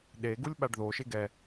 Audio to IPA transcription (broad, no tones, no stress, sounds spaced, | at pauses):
ɗ e ɡ u lʲ ɓ a ɖ ð o ʃ e ɡ ɛ